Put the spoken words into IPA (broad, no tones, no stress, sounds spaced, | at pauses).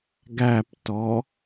ɡ æ p t ɔ